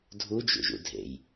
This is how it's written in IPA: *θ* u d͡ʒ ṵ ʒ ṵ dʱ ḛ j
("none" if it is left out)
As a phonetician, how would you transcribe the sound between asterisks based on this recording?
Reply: dʱ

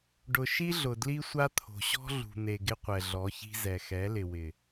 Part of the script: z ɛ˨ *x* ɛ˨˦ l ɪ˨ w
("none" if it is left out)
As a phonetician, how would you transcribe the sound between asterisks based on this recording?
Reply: x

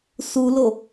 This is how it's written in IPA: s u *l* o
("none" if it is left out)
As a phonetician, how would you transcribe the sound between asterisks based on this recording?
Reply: l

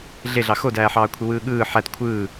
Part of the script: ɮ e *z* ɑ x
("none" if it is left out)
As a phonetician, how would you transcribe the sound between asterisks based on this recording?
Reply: ɮ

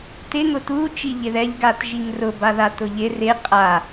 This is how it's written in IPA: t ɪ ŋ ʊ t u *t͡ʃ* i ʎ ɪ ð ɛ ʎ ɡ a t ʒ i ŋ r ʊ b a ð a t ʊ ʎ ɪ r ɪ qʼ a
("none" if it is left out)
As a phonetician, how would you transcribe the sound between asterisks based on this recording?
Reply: t͡ʃ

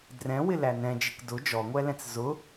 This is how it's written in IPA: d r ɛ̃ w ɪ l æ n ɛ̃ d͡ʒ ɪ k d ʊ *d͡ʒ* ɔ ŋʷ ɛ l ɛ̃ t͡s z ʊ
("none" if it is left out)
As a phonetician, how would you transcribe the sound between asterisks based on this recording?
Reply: d͡ʒ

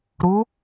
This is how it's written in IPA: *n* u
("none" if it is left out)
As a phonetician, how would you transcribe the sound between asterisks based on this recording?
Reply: ɾ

